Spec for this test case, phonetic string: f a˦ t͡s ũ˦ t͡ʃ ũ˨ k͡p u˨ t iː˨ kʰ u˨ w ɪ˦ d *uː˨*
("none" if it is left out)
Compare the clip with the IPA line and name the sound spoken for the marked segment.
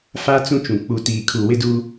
uː˦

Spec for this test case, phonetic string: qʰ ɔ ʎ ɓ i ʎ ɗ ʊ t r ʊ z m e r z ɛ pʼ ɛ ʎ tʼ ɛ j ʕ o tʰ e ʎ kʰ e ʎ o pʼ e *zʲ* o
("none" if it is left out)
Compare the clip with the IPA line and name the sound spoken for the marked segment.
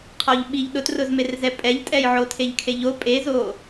z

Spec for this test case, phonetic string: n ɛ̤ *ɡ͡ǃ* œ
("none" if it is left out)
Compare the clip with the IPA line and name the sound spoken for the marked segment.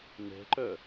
ǃ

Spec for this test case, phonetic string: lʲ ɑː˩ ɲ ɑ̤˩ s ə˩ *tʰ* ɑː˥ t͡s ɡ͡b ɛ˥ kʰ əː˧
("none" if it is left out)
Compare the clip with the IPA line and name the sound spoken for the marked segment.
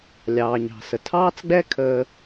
tʰ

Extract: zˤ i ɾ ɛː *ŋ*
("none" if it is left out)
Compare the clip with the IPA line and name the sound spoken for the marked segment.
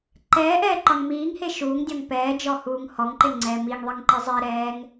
ŋ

